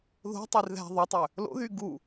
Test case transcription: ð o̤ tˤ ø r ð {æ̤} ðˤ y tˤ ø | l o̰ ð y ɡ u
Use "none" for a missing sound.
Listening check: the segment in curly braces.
æ̤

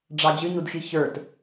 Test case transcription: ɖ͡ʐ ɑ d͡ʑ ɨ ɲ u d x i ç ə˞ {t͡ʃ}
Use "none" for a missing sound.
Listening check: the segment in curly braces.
t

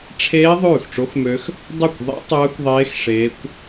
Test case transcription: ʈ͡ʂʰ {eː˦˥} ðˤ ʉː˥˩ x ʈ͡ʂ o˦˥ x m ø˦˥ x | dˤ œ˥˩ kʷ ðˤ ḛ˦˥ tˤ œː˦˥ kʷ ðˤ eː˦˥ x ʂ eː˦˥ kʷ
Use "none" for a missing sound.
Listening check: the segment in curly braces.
eː˦˥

